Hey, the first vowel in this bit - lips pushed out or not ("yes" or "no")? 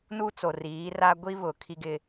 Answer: yes